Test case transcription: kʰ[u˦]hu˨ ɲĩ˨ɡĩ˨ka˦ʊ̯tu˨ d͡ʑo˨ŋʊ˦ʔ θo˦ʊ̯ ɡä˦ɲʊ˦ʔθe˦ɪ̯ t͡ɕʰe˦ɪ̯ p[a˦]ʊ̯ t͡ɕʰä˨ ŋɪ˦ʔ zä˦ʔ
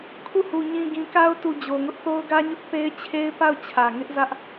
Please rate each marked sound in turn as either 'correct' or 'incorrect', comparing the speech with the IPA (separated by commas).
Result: incorrect, incorrect